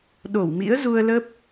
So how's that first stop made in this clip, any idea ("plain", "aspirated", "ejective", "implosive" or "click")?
implosive